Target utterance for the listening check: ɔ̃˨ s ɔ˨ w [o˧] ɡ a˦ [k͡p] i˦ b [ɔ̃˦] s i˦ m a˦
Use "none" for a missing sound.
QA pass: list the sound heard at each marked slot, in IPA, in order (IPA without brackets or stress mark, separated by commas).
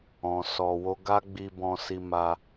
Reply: o˧, ɡ͡b, ɔ̃˦